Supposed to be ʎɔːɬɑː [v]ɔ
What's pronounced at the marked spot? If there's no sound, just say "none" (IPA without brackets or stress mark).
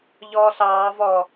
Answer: v